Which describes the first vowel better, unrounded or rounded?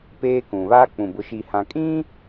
unrounded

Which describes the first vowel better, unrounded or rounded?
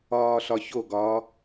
rounded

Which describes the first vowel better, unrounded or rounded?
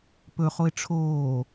rounded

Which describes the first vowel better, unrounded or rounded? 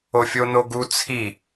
rounded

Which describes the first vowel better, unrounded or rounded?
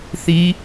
unrounded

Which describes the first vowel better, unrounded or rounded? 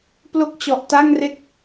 rounded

